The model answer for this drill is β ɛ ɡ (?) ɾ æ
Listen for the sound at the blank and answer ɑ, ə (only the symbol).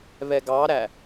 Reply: ɑ